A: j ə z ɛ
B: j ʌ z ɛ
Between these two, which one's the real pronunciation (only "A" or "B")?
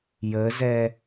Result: A